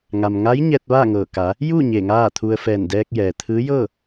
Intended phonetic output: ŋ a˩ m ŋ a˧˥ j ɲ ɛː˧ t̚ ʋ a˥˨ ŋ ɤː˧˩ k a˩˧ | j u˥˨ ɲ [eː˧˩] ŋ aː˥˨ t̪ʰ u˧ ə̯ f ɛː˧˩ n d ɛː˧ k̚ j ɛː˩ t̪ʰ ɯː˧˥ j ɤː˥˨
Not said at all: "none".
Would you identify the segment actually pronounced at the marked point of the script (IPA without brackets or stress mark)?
eː˧˩